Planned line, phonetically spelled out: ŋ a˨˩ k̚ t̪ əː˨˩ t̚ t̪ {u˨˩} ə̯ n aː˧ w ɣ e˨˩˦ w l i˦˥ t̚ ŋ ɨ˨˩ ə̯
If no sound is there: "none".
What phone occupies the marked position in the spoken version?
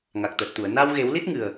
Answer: u˨˩˨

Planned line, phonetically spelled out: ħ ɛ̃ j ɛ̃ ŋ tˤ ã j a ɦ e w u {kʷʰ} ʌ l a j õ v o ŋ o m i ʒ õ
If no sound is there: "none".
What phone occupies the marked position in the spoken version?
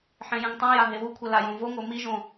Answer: kʷʰ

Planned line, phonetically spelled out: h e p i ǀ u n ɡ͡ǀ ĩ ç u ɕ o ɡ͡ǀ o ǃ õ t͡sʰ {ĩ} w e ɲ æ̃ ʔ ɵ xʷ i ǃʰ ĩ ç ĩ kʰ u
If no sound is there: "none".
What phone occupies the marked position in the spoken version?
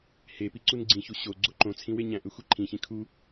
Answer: ĩ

